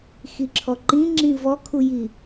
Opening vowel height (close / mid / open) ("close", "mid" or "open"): close